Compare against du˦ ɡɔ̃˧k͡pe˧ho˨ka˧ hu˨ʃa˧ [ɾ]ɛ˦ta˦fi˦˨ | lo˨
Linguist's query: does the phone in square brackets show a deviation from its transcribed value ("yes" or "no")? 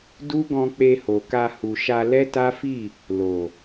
yes